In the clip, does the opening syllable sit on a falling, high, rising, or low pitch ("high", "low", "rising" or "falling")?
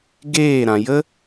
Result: falling